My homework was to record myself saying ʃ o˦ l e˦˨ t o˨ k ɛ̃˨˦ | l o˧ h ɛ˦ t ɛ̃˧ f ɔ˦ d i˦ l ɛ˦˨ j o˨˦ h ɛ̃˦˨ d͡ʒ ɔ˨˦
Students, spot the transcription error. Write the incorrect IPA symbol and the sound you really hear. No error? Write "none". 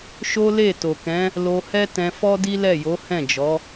none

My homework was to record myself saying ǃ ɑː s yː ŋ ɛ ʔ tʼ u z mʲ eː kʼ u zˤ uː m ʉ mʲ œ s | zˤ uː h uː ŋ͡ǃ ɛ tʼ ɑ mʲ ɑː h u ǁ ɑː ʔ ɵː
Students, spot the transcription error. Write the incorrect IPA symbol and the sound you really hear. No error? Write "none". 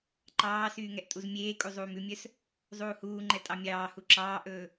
none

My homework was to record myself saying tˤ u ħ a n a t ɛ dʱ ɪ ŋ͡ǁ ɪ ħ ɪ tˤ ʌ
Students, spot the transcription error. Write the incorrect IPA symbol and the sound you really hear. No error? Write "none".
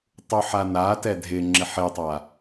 ʌ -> a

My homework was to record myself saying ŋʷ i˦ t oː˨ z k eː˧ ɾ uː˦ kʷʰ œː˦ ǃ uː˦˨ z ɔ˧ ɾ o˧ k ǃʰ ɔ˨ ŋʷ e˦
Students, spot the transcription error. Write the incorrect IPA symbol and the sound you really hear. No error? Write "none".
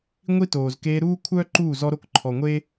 none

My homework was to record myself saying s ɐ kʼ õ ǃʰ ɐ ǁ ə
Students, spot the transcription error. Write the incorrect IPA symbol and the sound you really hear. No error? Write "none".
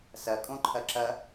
ə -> ɐ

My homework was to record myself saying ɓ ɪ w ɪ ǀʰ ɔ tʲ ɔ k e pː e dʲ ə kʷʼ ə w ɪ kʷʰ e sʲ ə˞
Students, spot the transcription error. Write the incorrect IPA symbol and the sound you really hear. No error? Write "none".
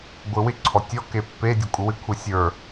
ɓ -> ɡʷ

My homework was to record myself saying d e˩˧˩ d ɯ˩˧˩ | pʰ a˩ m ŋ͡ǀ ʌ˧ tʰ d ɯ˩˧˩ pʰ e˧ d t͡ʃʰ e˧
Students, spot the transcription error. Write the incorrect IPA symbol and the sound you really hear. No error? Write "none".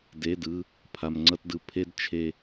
tʰ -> t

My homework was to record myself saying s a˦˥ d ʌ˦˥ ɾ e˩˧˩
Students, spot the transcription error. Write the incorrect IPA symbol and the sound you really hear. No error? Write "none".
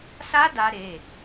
ʌ˦˥ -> a˦˥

